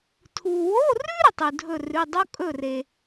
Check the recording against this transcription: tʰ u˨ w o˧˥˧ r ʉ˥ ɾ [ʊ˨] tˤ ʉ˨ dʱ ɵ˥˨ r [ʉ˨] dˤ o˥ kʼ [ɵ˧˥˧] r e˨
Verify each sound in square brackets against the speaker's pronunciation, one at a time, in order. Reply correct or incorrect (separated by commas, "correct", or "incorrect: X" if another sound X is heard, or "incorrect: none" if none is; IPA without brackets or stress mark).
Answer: incorrect: ɵ˨, incorrect: ʉ˧˥˧, incorrect: ɵ˥˨